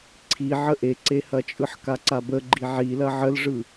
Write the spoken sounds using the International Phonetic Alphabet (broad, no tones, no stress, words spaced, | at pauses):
ǀʰiʕə ʔeǀehɐt͡ʃʼɯħ kaǀabəɡ͡ǃi ʕilɐ ʕəlʐɯ